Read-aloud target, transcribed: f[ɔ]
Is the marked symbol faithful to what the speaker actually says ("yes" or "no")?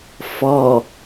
yes